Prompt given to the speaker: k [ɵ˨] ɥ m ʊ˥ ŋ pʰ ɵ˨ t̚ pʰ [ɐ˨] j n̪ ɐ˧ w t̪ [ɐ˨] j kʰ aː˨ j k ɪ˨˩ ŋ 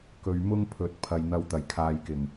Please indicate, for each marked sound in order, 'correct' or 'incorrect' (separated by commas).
correct, correct, incorrect